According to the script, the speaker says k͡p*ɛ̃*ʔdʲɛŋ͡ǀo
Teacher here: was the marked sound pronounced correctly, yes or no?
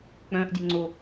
no